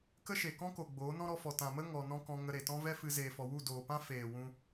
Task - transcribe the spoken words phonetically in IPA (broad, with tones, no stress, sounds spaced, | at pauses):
k ə˦ ʃ e˨ k ɔ̃˦ k o˨ ɡ͡b oː˨˦ n ɔ̃˦ ɾ ɔ˧ f ɔ˨ t ã˨ m ə˦ ŋ ɔ˨ n ɔ̃˦ k ɔ̃˧ ŋ ə˧ ɾ e˨ t ɔ̃˦ v ɛ˦ f ɨ˧ z eː˨ f ɔ˨ w u˦˨ d oː˨ p ã˦ f eː˨ w ũ˧